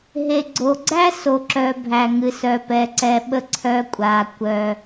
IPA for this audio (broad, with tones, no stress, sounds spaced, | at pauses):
ɦ e˨ ɡ͡ǀ o˨ ɡ͡ǀ æ˦ s o˨ ǁ œ˨ bʱ æ˨ ŋ ɨ˨ s œ˨ p ɛ˨ ǀ ɛ˨ ɓ ə˦ ǀʰ œ˦ kʷʼ a˨ kʷ œ˨